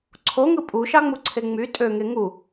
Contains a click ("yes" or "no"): yes